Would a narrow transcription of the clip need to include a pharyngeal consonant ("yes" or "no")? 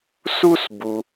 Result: no